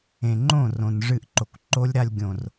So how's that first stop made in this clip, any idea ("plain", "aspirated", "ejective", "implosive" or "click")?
click